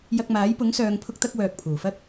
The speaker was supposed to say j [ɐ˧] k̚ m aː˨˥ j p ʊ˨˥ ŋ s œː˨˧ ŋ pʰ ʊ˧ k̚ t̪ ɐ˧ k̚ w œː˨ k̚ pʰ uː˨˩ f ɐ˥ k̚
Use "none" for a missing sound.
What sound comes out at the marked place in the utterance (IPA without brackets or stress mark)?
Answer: ɐ˧